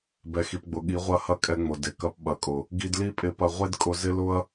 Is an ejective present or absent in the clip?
present